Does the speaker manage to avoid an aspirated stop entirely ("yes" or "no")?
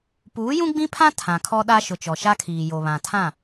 no